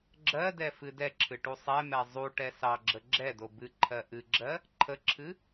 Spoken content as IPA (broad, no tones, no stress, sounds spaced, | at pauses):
ɡ͡ǁ ɜ d ɛ f ɨ d ɛ ǁʰ ɨ ʈ u sˤ ɛ m ɛ zˤ u ʈ ɛ s ɑ ɡ͡ǁ ə ɡ͡ǁ ɛ d o b ɨ ǃʰ ɜ ʔ ɨ ɡ͡ǁ ɜ | ǃʰ ə ǁʰ ɨ